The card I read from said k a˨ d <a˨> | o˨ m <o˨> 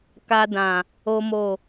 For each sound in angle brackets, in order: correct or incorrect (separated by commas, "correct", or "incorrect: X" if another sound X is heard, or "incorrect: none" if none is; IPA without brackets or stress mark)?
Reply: incorrect: ã˨, correct